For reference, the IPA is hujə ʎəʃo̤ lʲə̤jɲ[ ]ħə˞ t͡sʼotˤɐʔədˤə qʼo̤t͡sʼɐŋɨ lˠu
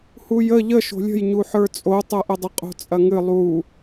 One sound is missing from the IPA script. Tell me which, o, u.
u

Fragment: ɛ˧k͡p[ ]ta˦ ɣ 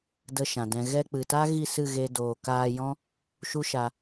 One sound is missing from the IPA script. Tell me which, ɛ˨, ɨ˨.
ɨ˨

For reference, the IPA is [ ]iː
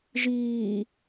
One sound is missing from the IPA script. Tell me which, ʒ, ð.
ʒ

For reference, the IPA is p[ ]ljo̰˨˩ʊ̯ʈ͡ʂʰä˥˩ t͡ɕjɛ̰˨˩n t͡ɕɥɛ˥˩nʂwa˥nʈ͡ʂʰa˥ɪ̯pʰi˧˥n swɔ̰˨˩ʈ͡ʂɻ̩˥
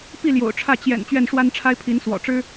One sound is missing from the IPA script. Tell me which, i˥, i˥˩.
i˥˩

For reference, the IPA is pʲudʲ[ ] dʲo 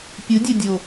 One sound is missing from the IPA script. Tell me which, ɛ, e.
ɛ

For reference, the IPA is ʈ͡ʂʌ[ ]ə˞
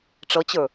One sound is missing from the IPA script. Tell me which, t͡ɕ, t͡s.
t͡ɕ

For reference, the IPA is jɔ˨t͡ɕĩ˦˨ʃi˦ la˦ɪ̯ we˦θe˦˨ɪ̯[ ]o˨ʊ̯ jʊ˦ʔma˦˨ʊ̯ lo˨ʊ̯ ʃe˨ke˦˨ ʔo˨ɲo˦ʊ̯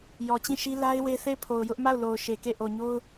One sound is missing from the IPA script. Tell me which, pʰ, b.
pʰ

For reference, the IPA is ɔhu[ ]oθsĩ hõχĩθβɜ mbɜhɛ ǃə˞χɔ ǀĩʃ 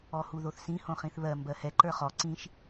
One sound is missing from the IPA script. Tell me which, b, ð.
ð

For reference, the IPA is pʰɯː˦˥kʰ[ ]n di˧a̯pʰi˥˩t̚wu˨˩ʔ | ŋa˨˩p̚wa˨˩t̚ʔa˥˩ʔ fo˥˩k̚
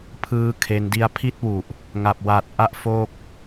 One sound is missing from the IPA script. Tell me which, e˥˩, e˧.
e˧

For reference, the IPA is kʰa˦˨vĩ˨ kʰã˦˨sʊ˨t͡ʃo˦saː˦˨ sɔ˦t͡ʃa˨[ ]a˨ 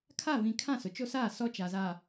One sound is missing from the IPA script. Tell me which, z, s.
z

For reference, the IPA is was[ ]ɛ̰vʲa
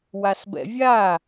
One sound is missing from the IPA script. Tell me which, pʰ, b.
b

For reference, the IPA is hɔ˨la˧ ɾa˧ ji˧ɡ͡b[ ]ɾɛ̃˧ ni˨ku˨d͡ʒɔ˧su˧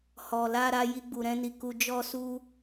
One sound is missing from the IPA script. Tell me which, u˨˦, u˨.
u˨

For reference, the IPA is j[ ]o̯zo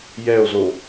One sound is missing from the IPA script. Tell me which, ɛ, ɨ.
ɛ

